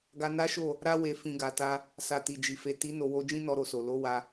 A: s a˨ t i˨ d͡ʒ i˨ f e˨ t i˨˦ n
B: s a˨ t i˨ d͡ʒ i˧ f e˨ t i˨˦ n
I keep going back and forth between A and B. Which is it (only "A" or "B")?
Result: A